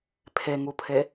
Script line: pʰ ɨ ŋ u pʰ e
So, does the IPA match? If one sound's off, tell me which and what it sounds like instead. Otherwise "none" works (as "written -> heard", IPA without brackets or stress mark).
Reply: ɨ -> e